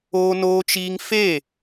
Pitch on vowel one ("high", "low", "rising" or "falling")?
high